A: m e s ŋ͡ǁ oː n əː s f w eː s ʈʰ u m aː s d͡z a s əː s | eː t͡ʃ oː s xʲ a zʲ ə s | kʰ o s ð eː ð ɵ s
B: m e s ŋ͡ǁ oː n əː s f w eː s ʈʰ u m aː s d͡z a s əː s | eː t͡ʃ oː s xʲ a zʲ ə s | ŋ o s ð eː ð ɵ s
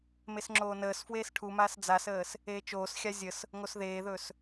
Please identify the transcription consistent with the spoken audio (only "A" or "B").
B